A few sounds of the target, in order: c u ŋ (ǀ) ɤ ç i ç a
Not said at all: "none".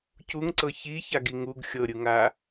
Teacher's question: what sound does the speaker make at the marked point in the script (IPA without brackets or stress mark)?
ǀ